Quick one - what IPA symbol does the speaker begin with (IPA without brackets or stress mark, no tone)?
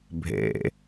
bʱ